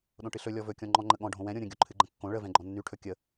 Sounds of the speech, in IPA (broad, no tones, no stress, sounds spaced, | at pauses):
ɗ õ ʈ ɨ ɬ ɵ lʲ ɔ v ɵ kʲ ɔ̃ ŋ͡ǃ ɔ̃ ŋ͡ǃ ə ɠ ɔ̃ ɖʱ õ w ɛ̃ ɾʲ õ ɾʲ ə̃ ɡʲ o ǃʰ ɨ ɡ͡ǃ ə̃ kː õ ɭ ə v ɛ̃ ɡ͡ǃ ɔ̃ nː y ʈʰ ɵ kʲ ə